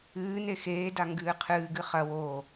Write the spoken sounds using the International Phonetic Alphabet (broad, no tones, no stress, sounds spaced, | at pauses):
ɨː n e x eː d a ŋ ɡ ɨː qʰ ɨː ɡ ɨ χ ɐ w oː